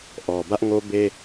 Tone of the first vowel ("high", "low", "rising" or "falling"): low